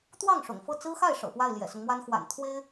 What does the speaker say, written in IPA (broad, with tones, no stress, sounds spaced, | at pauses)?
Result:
t̪ w ɑ˥˩ ŋ ʂ ʊ̰˨˩ ŋ f ɤ˥˩ t͡s ɹ̩˥ x a˥˩ ɪ̯ ʂ ɤ̰˨˩ p w a˥˩ ɪ̯ l j ɛ̰˨˩ s ʊ˦ ŋ m w a˥ n x w a̰˨˩ n t̪ʰ w e˥ ɪ̯